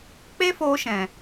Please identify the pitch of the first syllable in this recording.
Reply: high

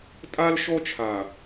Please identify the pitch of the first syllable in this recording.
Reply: high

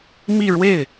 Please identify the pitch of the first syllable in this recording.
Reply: falling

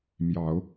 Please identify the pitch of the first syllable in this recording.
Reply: rising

